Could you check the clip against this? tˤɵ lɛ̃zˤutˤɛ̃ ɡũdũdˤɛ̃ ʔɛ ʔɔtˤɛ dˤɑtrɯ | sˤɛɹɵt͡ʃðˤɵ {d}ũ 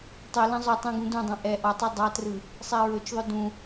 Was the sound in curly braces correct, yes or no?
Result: yes